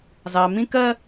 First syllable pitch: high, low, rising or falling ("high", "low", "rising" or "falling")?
low